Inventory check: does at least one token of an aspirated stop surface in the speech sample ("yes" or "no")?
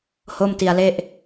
no